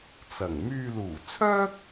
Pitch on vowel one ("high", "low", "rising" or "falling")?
low